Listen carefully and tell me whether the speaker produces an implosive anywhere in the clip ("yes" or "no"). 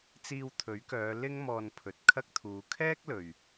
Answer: no